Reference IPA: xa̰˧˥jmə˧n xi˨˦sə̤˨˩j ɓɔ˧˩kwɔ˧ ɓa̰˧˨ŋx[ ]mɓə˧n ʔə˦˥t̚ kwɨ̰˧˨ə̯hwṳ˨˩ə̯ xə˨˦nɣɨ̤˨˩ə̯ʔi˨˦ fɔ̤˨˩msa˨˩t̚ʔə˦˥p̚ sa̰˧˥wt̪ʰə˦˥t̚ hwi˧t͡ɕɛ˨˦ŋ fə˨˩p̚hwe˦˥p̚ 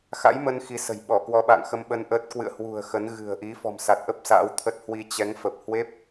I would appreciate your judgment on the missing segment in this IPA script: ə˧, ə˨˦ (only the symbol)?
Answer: ə˧